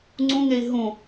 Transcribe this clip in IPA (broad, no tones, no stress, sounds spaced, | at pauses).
ŋ͡ǀ ũ ŋ e i̯ ɦ ũ